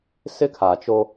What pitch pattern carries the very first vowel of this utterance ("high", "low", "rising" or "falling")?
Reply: high